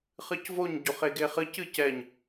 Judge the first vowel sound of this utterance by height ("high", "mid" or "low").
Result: high